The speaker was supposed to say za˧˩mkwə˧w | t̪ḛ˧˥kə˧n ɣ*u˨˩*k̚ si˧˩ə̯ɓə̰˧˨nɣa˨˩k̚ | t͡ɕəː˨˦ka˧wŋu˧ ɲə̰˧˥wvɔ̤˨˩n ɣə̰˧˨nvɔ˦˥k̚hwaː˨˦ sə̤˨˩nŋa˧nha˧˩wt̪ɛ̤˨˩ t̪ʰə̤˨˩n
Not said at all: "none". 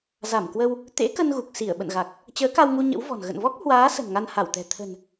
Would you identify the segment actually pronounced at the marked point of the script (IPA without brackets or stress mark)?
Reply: u˨˩